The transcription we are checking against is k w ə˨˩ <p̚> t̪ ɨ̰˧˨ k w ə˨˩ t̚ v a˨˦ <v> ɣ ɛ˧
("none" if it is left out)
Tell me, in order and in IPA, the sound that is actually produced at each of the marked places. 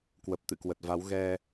p̚, w

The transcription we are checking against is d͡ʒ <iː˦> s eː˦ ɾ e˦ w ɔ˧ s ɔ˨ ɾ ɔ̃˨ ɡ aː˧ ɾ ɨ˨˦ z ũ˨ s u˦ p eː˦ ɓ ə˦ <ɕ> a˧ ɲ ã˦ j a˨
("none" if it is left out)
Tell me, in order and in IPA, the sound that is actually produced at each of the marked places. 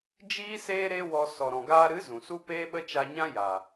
iː˦, t͡ʃ

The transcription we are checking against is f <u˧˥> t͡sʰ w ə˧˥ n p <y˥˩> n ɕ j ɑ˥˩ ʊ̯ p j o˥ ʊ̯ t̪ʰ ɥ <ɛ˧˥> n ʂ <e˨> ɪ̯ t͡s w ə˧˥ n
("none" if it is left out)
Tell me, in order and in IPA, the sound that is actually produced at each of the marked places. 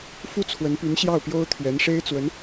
u˥, y˧˥, ɛ˧˥, e˥

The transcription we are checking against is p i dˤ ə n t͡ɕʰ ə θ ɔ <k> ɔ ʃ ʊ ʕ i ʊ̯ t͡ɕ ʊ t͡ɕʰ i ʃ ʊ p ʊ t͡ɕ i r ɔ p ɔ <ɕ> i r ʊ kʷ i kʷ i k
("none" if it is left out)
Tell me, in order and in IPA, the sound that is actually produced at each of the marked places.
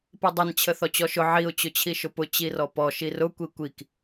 t͡ɕ, ʃ

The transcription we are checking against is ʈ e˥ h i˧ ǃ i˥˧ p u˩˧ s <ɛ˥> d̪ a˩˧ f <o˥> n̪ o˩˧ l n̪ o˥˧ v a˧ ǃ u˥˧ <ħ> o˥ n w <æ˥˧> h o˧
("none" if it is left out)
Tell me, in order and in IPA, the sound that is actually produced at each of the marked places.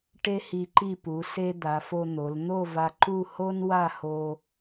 e˥, o˧, h, a˥˧

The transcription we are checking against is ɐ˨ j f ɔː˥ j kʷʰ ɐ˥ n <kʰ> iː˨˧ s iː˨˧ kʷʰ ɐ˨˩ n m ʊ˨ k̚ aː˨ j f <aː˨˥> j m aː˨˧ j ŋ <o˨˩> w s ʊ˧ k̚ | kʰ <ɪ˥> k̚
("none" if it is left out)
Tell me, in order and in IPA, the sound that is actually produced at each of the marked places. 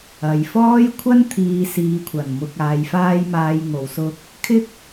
t̪ʰ, aː˧, o˨˩, ɪ˥

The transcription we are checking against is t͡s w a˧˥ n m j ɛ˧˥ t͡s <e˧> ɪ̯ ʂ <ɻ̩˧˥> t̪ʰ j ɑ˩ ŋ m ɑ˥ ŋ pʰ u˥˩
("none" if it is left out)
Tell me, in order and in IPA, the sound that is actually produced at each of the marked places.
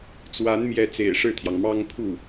ḛ˨˩, ɻ̩˥˩

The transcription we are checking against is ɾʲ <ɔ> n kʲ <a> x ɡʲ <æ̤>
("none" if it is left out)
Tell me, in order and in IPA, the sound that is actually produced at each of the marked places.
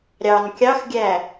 ɑ, ɑ, æ

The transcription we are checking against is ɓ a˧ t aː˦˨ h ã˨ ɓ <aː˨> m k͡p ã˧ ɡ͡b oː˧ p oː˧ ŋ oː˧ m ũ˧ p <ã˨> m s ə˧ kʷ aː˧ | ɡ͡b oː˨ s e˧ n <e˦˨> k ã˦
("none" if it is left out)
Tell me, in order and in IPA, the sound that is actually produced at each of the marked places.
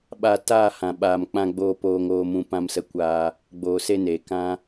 aː˨, ã˧, e˨

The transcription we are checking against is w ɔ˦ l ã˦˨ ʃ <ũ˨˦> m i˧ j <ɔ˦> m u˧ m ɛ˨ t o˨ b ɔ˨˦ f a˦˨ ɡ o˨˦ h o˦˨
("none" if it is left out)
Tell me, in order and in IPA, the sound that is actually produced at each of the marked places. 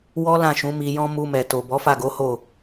ũ˨˦, ɔ̃˦

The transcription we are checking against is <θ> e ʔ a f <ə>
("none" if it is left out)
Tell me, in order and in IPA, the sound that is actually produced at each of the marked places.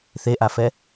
θ, ɛ

